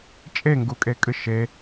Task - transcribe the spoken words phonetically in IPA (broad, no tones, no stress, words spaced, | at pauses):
t͡ʃʼeŋɡukʼekʼɨ ʃe